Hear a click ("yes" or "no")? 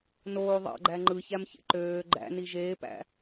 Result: yes